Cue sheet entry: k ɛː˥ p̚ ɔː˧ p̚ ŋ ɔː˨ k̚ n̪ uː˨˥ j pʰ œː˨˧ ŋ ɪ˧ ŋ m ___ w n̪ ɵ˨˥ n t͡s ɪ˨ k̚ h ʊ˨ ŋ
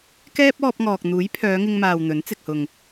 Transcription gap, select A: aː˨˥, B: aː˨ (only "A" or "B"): B